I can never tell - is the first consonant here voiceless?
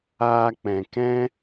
yes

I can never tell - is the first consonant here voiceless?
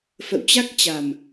yes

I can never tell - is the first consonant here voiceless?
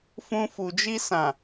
yes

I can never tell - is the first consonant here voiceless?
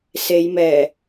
yes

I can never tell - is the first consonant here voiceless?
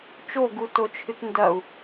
yes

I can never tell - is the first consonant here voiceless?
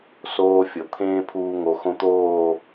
yes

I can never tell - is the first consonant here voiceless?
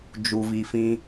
no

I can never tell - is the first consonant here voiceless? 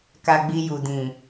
yes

